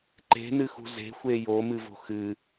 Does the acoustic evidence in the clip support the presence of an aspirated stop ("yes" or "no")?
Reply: no